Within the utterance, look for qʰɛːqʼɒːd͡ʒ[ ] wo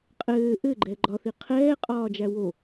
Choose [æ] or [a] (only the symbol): æ